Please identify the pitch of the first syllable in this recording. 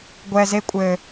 low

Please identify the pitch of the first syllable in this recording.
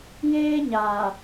high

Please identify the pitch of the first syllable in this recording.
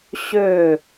falling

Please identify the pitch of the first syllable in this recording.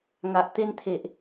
low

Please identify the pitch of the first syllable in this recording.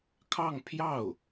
falling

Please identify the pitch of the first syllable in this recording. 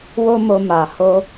high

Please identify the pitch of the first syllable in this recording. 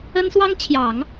high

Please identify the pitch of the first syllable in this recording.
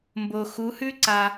low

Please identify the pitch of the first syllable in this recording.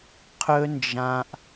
high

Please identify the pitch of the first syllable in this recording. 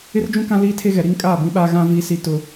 high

